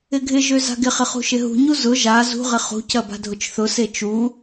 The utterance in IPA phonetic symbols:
ɪ ɡʱ ɪ ʒ ø z a̤ ɡ ɪ χ ɪ χ ṳ ʃ ɪ ɦ ṳ ɲ u z ʊ ʒ a z ṳ ʁ ɪ χ ṳ c ɐ b a̤ dʱ ʊ t͡ʃ θ ʊ s e t͡ʃ u

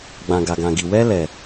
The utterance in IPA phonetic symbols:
ɡ͡b ã˨ ɡ a˨ ɡ ã˨ ɡ i˨ w ɛ˧ l ɛ˨

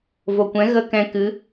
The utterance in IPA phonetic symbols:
v o˨ kʷ ɛ̃˨˦ ɣ ə˦ k ɛ̃˧ k ɨ˨˦

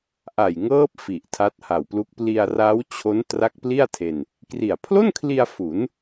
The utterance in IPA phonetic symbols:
ʔ a˨˩ j ŋ ɤː˦˥ p̚ f i˨˩ ʔ tʰ a˦˥ t̚ h a˨˩ w p l u˦˥ k̚ p l i˧ a̯ r a˦˥ w t͡ɕʰ o˦˥ n t r a˦˥ k̚ p l i˥˩ a̯ tʰ e˧ n | k r i˨˩ a̯ pʰ l o˥˩ n kʰ l i˧ a̯ f u˩˦ n

